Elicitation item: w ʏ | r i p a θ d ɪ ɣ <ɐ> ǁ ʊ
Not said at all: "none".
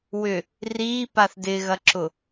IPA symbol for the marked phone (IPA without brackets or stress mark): ɐ